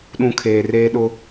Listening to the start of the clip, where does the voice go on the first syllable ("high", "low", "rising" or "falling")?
low